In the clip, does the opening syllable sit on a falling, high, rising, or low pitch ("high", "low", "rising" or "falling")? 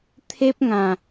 high